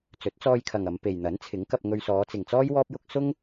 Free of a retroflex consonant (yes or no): yes